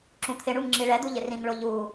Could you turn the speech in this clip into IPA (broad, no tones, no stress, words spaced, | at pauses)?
ǁũt̪ʰɪɳuŋ ŋ͡ǁiɭɛd̪u ʎɪrĩŋɭo ʎu